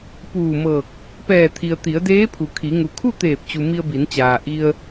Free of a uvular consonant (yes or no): yes